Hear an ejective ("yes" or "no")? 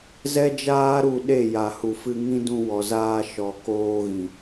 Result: no